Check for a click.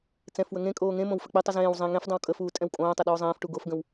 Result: absent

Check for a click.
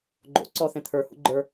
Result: present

